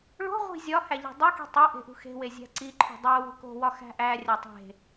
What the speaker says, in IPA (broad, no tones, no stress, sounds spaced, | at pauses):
ɭ o̤ ʁʷ i̤ zʲ ɒ h æ ʎ e̤ dˤ o k i̤ tˤ o ʔ e̤ ʔ ṳ x e̤ w e zʲ æ̤ ǀ i ǃʰ ṳ dˤ æ w o̤ k o̤ w ɒ x æ̤ ʔ æ rʲ æ tˤ e̤